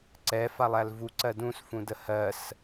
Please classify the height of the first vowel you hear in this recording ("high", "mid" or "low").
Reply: mid